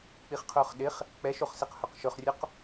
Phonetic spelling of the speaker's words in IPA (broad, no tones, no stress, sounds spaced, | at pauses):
k͡p i χ qʰ ʊː χ ɗ ɪ χ | k͡p ɛ ʃ o χ s e q h ɵ q ʃ ɵ χ rʲ ʊ q